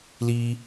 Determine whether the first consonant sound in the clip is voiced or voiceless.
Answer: voiced